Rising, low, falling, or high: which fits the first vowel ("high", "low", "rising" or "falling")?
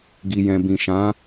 low